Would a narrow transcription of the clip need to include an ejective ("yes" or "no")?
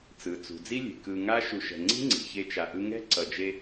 no